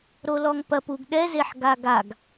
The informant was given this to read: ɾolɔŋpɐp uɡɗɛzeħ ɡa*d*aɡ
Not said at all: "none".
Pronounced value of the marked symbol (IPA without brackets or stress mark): ɡ